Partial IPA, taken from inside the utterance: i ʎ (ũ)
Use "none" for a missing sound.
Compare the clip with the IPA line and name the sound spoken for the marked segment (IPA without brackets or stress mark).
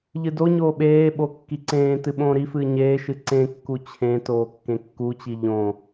õ